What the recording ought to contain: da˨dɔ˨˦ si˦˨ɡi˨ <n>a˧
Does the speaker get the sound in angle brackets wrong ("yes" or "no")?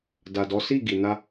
no